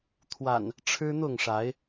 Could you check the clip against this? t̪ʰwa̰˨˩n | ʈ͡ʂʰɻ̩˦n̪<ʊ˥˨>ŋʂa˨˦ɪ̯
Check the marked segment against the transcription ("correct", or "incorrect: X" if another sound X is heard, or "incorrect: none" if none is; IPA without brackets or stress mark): correct